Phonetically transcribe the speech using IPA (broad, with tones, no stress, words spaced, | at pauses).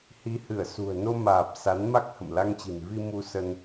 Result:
hi˨˦ hɨ˧˩ə̯sṳ˨˩ə̯ no˧maː˨˩p̚ sa˨˦nma˦˥k̚ hə̰˧˨m la˧ŋt͡ɕi̤˨˩n vi˧ mu˧sə˧n